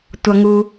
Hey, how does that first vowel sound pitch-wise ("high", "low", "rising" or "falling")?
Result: low